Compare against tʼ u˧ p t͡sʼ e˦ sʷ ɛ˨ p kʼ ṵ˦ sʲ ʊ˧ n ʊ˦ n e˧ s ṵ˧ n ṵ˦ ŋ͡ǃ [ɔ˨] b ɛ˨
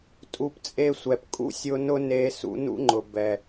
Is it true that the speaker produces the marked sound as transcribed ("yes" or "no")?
no